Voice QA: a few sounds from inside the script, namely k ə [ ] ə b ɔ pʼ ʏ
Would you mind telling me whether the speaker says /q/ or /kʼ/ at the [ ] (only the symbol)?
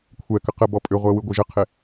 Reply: q